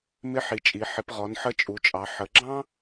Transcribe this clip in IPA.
m ɪ˧˥ ħ i˩˧ t͡ʃʼ i˩˧ ħ ɪ˩˧ p ʁ ɔ˩˧ n ħ ə˧˥ t͡ʃʼ u˩˧ t͡ʃʼ ɑ˩˧ ħ ə˩˧ ɡ͡ǁ ɑ̃˥

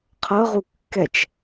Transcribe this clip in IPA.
qʰ ɤ ʁ u kː ɛ t͡ʃ

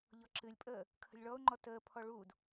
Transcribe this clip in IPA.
ʎ ɔ ǁ ɨ lʲ pʼ əː | kʰ ə̤ lʲ ɭ ɔ ʊ̯ ŋ͡ǃ ɔ t əː pʰ ɔ ɭ uː d

